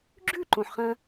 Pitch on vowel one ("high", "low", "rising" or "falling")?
falling